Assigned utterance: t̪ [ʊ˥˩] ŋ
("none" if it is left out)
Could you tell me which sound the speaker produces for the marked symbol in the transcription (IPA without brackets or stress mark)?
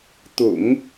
ʊ̰˨˩˦